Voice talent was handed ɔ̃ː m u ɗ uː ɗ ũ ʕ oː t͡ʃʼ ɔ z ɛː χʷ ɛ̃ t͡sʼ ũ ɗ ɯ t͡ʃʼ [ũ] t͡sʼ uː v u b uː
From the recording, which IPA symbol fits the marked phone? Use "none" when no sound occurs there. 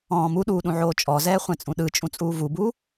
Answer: ũ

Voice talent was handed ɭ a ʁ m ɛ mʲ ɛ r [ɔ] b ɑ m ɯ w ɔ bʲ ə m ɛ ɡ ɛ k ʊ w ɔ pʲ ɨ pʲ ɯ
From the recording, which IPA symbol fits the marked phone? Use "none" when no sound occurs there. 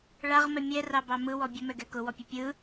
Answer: ɑ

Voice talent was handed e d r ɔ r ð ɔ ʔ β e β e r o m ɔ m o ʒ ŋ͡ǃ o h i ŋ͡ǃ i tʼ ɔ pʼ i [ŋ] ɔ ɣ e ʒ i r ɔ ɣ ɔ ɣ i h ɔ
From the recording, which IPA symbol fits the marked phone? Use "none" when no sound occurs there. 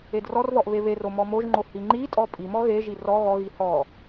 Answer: m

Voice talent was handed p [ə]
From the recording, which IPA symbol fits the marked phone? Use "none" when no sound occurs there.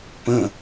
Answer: ə̃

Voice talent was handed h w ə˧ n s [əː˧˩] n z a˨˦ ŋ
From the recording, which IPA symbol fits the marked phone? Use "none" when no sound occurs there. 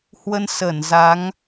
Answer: əː˧˩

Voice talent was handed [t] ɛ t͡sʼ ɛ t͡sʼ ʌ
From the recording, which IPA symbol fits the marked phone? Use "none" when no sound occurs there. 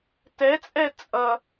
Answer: t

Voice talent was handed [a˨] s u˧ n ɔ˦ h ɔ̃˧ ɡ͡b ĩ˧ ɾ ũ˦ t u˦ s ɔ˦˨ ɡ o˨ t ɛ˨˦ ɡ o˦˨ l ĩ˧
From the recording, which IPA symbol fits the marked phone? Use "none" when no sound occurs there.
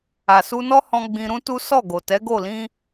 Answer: a˨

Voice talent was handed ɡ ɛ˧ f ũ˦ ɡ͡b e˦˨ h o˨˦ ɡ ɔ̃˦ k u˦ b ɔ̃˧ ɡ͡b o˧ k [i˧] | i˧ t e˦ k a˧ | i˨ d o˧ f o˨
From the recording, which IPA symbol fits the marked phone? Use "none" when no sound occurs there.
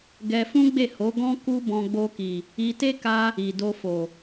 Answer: i˨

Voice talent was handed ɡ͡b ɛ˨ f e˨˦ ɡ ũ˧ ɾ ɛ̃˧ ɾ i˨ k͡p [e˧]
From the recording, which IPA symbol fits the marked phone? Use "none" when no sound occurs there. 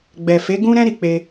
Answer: e˧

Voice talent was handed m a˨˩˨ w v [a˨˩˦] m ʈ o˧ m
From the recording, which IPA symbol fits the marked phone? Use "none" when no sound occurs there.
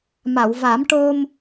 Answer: a˨˩˦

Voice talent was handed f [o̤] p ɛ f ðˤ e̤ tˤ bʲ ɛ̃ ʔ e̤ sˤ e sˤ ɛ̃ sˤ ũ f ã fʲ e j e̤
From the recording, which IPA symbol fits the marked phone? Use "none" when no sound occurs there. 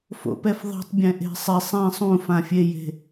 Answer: o̰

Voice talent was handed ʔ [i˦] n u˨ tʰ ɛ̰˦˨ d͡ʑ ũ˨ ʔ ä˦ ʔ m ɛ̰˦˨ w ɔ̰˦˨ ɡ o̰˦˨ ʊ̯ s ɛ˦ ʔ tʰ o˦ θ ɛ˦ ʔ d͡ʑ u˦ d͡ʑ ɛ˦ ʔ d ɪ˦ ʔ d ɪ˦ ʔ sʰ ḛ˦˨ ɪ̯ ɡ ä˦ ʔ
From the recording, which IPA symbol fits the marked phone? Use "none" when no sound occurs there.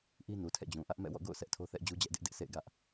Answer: i˦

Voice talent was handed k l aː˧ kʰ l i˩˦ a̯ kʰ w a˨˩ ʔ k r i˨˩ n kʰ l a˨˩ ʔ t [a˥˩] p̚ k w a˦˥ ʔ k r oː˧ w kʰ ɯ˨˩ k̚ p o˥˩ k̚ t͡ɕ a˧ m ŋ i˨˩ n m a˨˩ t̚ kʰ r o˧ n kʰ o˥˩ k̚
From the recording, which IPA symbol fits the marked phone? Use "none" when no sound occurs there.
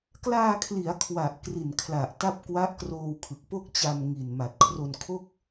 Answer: a˥˩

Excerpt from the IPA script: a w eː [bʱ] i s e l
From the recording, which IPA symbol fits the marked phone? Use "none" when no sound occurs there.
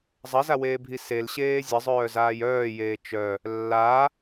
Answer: bʱ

